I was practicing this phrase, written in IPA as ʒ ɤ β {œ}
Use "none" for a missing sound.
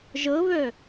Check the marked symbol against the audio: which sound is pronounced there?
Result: œ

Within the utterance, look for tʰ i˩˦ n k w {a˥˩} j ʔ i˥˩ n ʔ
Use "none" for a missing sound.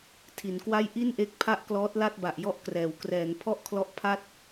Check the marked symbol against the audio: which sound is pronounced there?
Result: a˥˩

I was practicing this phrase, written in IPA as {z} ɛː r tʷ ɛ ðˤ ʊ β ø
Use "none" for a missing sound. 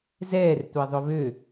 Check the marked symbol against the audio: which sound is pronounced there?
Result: z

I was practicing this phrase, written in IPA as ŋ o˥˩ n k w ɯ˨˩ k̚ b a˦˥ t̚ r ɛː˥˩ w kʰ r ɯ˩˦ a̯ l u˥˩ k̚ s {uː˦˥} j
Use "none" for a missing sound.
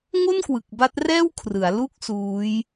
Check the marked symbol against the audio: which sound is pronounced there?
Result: uː˦˥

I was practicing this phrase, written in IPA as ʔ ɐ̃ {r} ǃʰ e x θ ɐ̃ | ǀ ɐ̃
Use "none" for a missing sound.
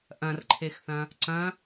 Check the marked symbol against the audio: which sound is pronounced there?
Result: r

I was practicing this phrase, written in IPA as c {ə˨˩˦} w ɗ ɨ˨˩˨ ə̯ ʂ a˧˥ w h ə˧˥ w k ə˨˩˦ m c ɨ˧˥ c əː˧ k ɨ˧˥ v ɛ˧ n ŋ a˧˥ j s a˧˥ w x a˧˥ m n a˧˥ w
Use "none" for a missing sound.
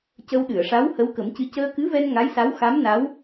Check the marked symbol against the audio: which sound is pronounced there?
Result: ə˧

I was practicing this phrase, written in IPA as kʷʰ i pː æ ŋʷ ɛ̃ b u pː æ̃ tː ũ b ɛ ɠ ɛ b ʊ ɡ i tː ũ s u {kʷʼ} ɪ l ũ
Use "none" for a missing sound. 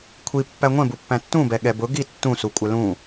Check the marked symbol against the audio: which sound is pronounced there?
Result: kʷʼ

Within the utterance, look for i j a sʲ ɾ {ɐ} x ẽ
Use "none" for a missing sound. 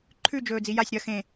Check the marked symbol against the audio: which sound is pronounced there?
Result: ɐ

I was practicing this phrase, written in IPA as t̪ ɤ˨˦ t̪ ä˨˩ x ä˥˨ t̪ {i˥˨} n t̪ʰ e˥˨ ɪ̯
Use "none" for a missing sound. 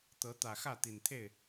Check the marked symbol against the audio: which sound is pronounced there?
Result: i˨˩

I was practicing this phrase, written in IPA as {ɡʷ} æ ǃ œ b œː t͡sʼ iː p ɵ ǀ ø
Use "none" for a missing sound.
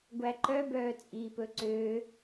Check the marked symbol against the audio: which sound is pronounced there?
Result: ɡʷ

